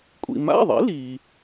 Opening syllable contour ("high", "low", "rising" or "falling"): low